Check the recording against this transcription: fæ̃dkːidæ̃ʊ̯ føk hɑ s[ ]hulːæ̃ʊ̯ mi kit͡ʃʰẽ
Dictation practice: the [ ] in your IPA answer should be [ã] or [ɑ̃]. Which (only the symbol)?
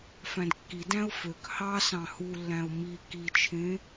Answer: ɑ̃